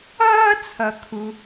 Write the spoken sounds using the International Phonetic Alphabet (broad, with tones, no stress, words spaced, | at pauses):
ʌː˥t͡sʰʌ˩kʰu˩